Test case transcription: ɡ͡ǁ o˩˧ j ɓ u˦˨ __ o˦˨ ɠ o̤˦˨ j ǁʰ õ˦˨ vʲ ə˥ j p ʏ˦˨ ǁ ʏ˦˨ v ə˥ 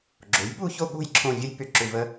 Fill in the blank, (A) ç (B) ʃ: A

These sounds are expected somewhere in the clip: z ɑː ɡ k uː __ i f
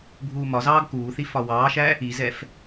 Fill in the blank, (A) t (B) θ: B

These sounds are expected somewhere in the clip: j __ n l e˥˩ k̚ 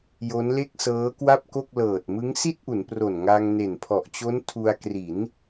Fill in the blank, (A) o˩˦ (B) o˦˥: B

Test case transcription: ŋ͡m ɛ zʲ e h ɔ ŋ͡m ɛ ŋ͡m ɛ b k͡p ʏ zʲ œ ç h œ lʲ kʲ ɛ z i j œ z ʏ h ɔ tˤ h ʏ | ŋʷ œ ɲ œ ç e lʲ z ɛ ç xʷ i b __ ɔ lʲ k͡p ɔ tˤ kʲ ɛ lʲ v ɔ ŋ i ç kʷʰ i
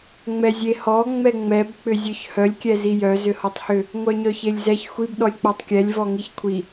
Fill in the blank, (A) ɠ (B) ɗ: B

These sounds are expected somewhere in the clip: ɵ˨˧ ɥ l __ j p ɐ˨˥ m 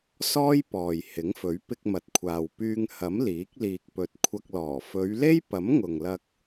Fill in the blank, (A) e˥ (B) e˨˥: A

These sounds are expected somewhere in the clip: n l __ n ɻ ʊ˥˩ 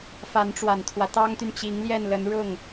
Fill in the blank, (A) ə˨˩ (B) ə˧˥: B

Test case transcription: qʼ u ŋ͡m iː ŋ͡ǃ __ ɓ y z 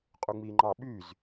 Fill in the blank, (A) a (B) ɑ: B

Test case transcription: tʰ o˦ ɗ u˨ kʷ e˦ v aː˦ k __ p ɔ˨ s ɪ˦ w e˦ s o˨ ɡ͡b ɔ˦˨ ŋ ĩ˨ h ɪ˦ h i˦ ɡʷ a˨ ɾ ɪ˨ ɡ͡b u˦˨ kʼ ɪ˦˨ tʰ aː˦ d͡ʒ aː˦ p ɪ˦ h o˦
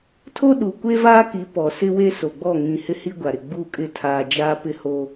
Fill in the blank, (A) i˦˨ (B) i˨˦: B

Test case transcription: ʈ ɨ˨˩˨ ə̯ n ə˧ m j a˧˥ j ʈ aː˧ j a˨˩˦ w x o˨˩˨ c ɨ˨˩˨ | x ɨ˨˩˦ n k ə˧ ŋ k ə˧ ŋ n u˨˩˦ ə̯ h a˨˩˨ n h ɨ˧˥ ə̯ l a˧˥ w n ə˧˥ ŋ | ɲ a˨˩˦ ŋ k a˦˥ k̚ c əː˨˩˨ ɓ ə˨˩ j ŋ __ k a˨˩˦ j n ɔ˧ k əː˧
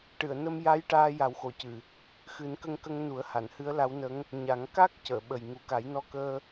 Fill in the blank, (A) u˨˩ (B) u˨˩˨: A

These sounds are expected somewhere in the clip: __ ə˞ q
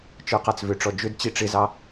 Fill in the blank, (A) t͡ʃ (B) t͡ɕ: A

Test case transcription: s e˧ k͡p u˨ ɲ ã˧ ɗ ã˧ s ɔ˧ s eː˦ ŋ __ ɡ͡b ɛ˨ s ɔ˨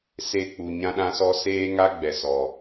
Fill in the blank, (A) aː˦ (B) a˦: B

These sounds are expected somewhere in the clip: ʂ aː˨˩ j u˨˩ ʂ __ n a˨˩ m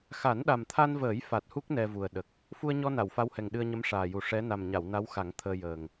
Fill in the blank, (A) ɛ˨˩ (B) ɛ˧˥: B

